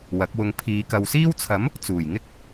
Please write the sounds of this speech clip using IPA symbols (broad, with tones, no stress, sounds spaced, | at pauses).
w ɐ˨˥ k̚ w ʊ˧ ŋ pʰ iː˨˧ k ɐ˨ w s iː˥ w t͡sʰ ɐ˨˥ m | t͡s uː˨˩ j ŋ ɪ˥ k̚